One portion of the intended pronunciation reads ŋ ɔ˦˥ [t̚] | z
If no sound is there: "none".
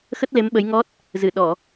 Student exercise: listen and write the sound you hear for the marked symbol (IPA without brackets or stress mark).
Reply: t̚